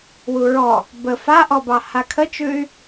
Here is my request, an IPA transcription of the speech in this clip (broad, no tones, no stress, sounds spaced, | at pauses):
w u ɹ ɔ | b ə f a ʔ ɔ b ɑ h a kʰ ə t͡ʃ ʉ y̯